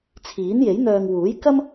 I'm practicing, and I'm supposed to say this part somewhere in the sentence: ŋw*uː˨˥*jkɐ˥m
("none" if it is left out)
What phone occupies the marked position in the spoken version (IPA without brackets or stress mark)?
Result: uː˨˥